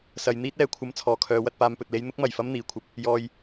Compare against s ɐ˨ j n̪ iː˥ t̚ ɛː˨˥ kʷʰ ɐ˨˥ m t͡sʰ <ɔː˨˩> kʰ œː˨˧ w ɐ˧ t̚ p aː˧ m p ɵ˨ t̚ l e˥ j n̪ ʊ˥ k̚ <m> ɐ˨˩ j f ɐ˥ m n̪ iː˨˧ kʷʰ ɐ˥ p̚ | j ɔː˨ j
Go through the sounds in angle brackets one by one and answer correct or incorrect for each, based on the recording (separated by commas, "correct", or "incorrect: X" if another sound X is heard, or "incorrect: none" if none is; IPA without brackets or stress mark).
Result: correct, correct